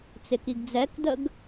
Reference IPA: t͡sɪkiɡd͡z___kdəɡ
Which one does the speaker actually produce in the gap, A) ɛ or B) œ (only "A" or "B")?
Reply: A